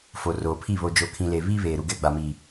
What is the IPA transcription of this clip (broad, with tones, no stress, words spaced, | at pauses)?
fo˨roː˨pʰi˦˨ βo˨d͡ʒo˨ kʰĩ˨le˨ βiː˦βeː˨ ɾu˨ɡɛ˦˨ɡ͡ba˨miː˨